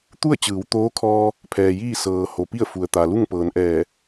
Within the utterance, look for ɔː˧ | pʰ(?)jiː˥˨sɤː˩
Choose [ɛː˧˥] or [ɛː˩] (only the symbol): ɛː˩